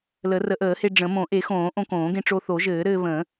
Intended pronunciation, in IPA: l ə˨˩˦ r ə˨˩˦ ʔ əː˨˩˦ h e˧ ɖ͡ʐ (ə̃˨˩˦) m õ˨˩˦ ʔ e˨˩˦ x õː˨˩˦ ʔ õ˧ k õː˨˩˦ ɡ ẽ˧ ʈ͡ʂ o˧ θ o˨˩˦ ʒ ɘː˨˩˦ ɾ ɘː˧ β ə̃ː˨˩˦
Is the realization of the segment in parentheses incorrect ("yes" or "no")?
no